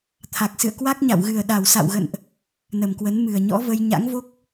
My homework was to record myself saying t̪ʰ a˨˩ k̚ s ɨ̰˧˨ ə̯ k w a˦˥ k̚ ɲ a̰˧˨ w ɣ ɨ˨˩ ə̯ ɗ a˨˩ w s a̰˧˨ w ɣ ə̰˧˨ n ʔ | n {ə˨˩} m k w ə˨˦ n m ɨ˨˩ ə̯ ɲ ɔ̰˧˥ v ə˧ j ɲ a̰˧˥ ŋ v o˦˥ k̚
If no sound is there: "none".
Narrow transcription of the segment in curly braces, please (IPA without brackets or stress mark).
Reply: ə˨˩